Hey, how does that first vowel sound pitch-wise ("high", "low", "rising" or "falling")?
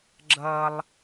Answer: high